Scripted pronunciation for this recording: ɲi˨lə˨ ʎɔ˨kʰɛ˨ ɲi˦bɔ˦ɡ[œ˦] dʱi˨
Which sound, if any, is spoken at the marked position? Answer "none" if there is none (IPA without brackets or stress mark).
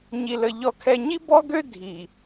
ø˦